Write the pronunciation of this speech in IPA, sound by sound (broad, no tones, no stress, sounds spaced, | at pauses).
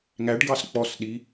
ŋ æ ɖ ɡ ɑ s k͡p ɔ s ɗ i